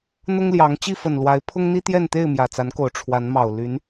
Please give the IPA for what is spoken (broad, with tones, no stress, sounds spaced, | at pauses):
n̪ ʊ˦ ŋ l j ɑ˨˦ ŋ t͡ɕ i˥˨ f ə˨˩ n l w a˨˦ ɪ̯ pʰ ʊ˦ ŋ n̪ i˦ t̪ j ɛ˥˨ n t̪ e˥˨ ɪ̯ m j ä˨˩ t͡s a˨˦ n k o˨˩ ʊ̯ ʈ͡ʂʰ w a˨˦ n m ɑ˨˩ ʊ̯ l y˨˦ n